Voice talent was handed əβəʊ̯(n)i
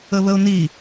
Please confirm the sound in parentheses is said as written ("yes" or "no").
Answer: yes